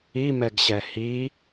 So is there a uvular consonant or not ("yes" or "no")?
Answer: no